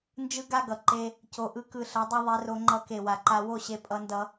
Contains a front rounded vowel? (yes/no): no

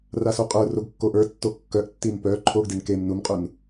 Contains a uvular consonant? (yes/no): yes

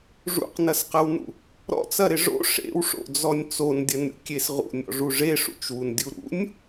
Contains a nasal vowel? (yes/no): no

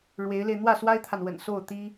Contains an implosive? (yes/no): no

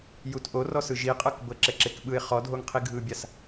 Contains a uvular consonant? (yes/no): yes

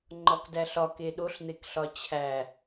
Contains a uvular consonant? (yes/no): no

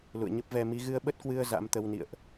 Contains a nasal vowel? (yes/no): no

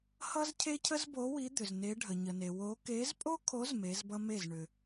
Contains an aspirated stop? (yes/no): yes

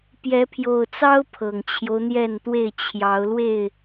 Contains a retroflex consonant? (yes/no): no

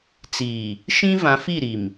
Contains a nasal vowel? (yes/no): yes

